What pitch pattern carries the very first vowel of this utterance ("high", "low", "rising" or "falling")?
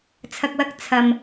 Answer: low